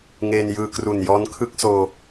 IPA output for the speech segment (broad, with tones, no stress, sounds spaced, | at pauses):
ŋ eː˧ n j ɯː˧ k r u˨˩ n j ɔː˦˥ n kʰ ɯ˥˩ k̚ s oː˧